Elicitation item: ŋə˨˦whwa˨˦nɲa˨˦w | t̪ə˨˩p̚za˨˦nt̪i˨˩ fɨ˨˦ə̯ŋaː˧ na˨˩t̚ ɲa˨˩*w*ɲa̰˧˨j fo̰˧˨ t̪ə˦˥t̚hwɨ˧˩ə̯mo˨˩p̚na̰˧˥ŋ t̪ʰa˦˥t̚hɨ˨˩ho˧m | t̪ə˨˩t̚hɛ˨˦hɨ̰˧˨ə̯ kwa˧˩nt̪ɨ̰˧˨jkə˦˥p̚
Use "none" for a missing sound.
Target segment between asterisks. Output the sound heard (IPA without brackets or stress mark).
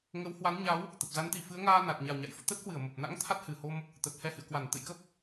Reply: w